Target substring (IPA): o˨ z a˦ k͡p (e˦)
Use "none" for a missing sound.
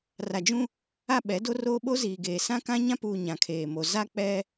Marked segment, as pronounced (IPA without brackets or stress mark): ɛ˦